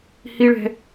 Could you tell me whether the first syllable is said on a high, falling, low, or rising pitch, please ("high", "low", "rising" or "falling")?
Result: high